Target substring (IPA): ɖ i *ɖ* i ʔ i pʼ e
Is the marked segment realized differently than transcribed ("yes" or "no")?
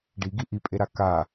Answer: yes